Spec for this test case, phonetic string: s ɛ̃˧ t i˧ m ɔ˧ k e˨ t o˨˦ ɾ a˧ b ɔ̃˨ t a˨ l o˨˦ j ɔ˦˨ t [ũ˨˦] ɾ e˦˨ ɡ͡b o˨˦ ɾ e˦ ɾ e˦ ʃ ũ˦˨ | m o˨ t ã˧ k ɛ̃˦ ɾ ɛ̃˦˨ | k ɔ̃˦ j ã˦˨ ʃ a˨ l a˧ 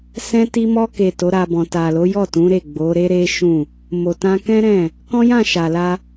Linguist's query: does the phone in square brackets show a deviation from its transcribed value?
no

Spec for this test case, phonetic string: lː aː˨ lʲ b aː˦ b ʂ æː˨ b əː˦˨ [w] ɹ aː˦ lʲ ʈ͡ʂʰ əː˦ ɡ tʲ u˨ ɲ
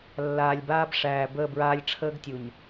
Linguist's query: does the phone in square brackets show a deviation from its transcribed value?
yes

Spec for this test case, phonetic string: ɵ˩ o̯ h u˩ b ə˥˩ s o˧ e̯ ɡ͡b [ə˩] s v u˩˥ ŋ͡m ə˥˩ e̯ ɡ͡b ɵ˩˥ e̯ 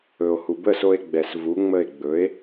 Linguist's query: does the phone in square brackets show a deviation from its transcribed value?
yes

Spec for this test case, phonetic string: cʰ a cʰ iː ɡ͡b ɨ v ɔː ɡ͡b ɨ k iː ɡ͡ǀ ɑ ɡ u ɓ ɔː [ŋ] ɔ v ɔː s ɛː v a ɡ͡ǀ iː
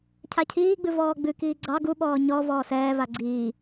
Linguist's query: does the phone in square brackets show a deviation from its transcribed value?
yes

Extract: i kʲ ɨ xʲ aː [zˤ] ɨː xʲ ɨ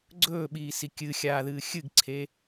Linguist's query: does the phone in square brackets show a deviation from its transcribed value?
yes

